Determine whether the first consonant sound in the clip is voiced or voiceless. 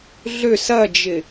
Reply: voiced